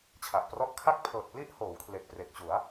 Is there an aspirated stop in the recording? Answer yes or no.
yes